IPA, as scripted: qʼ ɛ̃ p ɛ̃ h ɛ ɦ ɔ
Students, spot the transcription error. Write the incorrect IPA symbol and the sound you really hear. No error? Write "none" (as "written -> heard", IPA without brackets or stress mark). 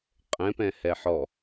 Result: ɦ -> ħ